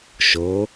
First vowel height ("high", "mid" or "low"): mid